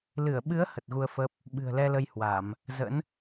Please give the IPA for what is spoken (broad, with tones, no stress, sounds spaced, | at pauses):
l ɨ˧˩ ə̯ ɓ ɨ˨˦ ə̯ h ə˨˩ t̚ ɣ u˧ ə̯ f ə˦˥ p̚ | ɓ ɨ̤˨˩ ə̯ l ɛ˧ l ə˧ j h w a˧˩˨ m | z ə̰˧˥ n